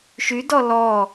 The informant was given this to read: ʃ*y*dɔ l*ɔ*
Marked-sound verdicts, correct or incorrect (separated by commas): correct, correct